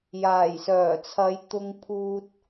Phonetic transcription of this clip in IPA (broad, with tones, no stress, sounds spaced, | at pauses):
j aː˨˩ j s œː˨˩ t͡sʰ ɐ˨˧ j t̪ ʊ˧ ŋ pʰ uː˧ t̚